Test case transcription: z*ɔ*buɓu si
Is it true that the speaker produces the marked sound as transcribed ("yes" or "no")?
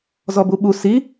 yes